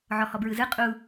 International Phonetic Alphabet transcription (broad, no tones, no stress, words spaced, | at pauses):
ʕɔhɔbɹɯzɯ qʼu